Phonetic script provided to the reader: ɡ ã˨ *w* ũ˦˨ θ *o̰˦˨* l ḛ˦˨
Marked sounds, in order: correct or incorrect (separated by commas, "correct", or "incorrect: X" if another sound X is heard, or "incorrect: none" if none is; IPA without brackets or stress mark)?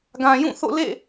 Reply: incorrect: j, correct